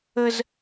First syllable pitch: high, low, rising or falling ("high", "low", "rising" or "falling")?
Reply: high